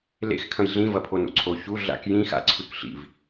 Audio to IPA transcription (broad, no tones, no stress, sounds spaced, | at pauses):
l ḛ x kʰ ɐ̃ j ɮ ĩ v ɐ pʰ o n ṵ ǀʰ o ç u ɮ a̰ k j ĩ x a̰ ǀʰ ʉ k ɬ ḭ v